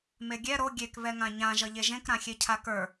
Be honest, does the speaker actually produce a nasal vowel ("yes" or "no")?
yes